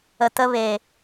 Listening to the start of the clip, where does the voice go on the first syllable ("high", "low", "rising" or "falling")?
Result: low